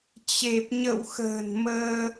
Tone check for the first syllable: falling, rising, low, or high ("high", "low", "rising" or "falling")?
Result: low